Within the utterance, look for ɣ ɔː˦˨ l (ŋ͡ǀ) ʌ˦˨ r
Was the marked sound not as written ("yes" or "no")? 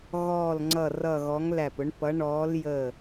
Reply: no